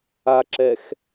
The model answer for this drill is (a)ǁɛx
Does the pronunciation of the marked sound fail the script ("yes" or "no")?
no